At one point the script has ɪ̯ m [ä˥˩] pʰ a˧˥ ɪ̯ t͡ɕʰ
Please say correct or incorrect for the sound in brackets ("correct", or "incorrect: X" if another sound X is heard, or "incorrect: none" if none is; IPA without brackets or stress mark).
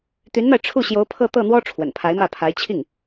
correct